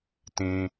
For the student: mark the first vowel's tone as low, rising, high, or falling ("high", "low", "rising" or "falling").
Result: high